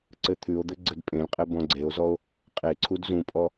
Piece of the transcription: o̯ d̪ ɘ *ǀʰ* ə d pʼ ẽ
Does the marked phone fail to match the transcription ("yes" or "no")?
yes